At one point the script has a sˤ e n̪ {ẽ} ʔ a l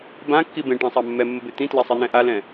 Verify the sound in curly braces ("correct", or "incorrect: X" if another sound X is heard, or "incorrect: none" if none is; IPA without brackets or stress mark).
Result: incorrect: ɛ̃